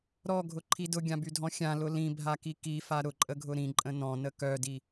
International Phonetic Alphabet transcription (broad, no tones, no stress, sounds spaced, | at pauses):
ɾ ɔ ɡʱ ʊ ǃʰ i d ʊ ɡʲ ã b y dʱ ɔ̃ xʲ ã l ʊ l ĩ bʱ a k i k i f a ɾ ʊ ǃʼ ə ɡʱ ʊ ɾ ĩ ǃʼ ə̃ n ɔ̃ n ə k œ d i